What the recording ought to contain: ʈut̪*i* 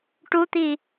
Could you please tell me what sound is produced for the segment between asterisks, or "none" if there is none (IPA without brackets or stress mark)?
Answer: i